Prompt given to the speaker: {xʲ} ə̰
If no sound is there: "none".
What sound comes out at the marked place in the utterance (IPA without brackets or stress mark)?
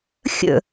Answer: xʲ